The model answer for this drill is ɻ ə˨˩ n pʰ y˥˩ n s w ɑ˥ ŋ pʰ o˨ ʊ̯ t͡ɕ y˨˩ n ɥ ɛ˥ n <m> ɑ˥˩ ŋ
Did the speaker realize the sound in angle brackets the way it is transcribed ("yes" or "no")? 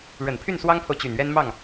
yes